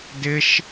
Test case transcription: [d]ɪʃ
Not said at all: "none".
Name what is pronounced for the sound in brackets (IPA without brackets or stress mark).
d